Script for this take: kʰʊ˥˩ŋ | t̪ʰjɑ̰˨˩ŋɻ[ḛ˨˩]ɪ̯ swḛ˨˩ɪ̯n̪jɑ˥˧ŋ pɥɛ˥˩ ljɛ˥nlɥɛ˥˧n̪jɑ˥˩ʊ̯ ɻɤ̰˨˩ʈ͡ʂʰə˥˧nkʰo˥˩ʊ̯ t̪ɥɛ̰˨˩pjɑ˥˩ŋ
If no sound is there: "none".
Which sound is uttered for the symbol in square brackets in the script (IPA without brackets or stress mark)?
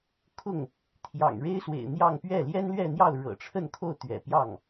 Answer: e˥